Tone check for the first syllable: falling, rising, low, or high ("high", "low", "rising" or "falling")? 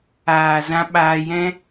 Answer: low